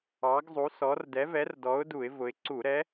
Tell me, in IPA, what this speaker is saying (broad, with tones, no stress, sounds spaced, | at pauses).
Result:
ɑ˩˧ ɡ zˤ u˩˧ s ɔ˩˧ r d ɛ˨˥ v ɛ˨˥ r d ɔ˨˥ ʊ̯ d u˧˩˧ ɪ̯ v ʊ˩˧ ɪ̯ ǀ u˧˩˧ ɾ ɛ˨˥